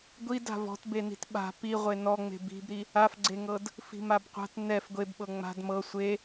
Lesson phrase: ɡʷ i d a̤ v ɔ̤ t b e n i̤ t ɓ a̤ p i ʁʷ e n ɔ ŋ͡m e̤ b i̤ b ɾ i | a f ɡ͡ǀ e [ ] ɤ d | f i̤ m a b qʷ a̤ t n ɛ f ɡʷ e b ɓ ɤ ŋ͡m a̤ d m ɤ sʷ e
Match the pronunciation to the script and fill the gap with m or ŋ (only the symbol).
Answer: ŋ